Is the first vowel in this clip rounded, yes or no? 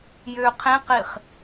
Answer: yes